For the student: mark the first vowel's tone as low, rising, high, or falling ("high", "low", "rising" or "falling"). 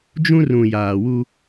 high